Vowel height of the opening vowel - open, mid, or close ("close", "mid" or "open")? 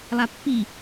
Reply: open